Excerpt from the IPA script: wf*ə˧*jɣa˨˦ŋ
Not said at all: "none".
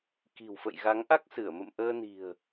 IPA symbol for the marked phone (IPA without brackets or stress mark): ə̰˧˨